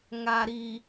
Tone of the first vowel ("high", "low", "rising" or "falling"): low